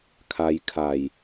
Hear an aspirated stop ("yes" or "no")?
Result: yes